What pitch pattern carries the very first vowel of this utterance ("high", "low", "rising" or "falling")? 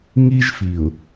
high